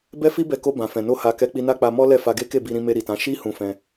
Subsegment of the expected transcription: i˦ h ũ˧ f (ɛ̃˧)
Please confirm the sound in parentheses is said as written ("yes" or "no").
yes